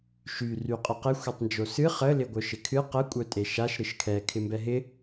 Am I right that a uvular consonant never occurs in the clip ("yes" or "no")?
no